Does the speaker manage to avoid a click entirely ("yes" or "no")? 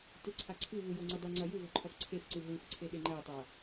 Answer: no